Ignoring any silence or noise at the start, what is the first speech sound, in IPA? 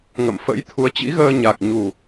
ŋ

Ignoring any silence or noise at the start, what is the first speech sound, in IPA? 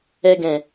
ɛ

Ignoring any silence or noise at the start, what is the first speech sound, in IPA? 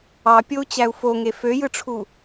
ɑ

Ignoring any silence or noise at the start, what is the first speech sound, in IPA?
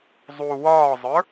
zˤ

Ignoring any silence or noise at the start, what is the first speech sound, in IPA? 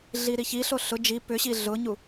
ɮ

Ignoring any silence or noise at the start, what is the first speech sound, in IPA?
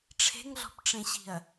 ʈ͡ʂʰ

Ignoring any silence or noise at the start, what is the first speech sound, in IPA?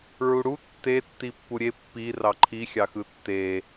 ɹ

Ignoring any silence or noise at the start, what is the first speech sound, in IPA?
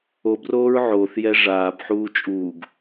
o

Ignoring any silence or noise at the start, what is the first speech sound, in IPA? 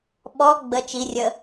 ɓ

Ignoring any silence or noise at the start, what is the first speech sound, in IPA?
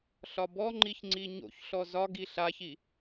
ɬ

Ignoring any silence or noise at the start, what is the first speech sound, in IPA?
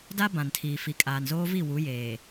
d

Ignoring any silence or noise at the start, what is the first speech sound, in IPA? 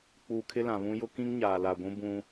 k͡p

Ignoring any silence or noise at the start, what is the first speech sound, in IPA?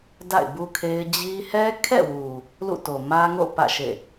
d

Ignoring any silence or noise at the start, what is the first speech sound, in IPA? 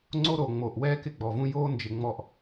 ŋ͡ǀ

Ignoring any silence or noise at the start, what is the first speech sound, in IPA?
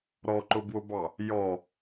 ɾ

